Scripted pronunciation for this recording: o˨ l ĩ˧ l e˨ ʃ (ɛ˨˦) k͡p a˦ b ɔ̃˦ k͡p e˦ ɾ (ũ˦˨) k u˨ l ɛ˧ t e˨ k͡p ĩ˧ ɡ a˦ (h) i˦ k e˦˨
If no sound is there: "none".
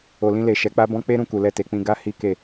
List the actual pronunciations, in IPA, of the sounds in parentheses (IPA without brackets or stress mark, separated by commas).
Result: ɛ˨˦, ũ˦˨, h